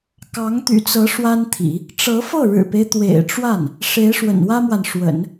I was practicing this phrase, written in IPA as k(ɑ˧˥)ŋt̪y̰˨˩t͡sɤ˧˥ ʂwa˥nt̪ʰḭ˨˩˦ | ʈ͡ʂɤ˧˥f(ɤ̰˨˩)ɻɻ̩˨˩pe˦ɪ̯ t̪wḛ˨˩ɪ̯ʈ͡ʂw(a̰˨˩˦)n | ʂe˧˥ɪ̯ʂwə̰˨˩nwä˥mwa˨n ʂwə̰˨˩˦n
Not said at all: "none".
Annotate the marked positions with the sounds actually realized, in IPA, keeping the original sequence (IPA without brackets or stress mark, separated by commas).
ɑ˧˥, ɤ˥˩, a˥˩